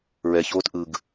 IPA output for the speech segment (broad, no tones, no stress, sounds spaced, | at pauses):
ɹ ɛ ç oː t ʔ ɯ ɡ